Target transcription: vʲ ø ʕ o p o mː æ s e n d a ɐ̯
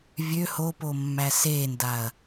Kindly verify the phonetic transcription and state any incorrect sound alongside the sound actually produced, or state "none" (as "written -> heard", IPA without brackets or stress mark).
ʕ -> h